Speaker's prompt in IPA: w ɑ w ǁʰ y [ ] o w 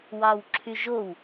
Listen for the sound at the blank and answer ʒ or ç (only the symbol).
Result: ʒ